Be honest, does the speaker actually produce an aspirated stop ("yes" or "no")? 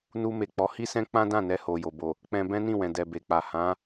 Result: no